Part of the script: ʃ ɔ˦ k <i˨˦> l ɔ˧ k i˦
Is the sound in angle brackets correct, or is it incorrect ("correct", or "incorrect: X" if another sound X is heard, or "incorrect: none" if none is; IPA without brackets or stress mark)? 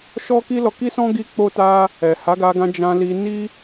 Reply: incorrect: i˦